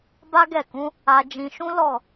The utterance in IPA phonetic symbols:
ba˦ɡɛ˦˨kũ˨˦ | a˧d͡ʒĩ˧ʃũ˦ lɔ˦˨

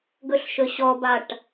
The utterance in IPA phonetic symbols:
ɡɵɬʃɵɕɔbaʈ

